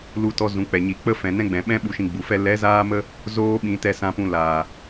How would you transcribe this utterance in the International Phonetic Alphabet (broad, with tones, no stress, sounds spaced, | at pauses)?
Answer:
l u˦ t ɔ˦ z ũ˨˦ k͡p ɛ˨ ɲ i˨ k͡p ə˦ f ɛ̃˨ n ɛ̃˦ ɡ͡b ɛ̃˨ ɓ ɛ̃˦ ɓ u˧ ʃ ĩ˧ ɡ͡b u˨ f ɛ˦ l ɛ˨˦ z aː˧ m ə˧ | z oː˦ ɓ ĩ˨˦ t ɛ˦˨ s ã˧ p ũ˧ l aː˨